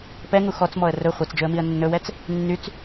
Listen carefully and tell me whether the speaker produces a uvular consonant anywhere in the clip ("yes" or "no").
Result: yes